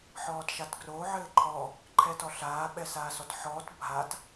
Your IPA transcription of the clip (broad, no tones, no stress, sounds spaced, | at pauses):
ħ ɔː t ʃ a t ɡ r o ʕ ɘː ǃʰ ɔ | ǃʰ ɛ t ɔ ɬ aː ɓ ɛ s aː s ɔ t ħ ɔː t bʱ a t